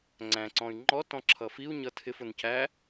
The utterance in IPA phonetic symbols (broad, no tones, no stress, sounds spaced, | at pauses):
ŋ͡ǀ æ̃ ǀ ɔ̃ y̯ ŋ͡ǃ ɔ t ɔ̃ ǁʰ ʌ f i u̯ ɲ ʌ tʰ ɪ f ʊ n c æ